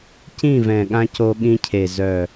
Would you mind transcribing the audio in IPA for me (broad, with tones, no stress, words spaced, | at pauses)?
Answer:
cĩ˦˨vɛ̃˨ɠã˧ co˧ɠĩ˧cʰe˨ zœ˨